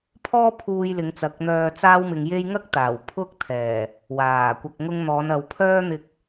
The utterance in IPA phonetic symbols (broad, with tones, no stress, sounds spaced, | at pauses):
pʰ ɔː˥ pʰ uː˧ j l ɪ˨˧ ŋ t͡s ɐ˨ k̚ n̪ œː˧ t͡s aː˥ w m ɪ˧ ŋ j e˥ j ŋ ɐ˥ k̚ t̪ aː˨˩ w pʰ ʊ˧ k̚ t̪ʰ ɛː˨˩ | w aː˨˩ kʷ ɐ˨ k̚ ŋ ʊ˧ ŋ n̪ ɔː˨˧ n ɐ˨˧ w pʰ œː˥ n̪ ɪ˧ k̚